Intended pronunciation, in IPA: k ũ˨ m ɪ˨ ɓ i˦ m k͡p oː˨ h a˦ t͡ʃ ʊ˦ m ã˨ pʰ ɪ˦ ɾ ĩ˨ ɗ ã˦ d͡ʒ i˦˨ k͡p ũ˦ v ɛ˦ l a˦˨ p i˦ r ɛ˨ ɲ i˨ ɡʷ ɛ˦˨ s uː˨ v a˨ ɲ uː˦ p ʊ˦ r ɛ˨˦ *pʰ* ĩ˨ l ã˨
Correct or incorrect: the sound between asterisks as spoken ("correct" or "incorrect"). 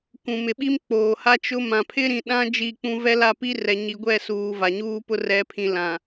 correct